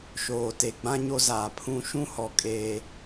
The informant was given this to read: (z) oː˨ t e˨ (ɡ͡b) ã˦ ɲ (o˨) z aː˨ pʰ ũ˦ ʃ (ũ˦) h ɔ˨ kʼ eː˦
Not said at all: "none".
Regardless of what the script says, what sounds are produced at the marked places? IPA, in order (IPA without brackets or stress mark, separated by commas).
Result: ʃ, ɡ͡b, o˦, ũ˦